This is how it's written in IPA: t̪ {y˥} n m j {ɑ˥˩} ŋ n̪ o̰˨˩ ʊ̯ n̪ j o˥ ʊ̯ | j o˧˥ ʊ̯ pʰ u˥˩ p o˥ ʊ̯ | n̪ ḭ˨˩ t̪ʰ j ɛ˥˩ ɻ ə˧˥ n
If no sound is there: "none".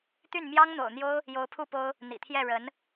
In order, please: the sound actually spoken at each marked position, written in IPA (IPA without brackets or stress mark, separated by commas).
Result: y˥˩, ɑ˥